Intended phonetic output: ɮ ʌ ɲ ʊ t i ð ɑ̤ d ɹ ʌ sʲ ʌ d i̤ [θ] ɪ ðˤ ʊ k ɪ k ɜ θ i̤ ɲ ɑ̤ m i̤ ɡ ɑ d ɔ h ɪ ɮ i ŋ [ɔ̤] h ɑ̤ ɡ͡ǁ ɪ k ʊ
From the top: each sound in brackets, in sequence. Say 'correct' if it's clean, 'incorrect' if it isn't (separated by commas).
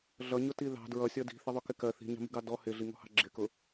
correct, correct